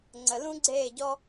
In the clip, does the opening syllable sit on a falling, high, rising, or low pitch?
low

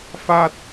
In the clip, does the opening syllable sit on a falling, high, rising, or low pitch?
falling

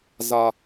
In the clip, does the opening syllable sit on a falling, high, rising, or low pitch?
low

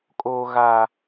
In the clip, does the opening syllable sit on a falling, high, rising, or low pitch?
high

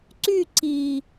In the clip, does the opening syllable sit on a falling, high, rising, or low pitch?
falling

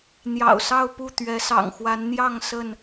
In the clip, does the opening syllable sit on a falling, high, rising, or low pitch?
low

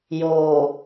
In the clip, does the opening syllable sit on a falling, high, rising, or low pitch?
low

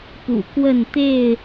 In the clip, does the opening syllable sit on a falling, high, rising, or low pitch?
low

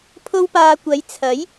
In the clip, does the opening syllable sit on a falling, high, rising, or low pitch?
high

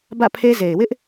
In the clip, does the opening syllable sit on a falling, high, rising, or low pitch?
falling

